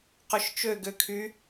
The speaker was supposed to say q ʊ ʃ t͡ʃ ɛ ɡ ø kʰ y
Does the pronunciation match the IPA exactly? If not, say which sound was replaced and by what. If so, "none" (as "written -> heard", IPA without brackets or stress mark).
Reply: ɛ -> ø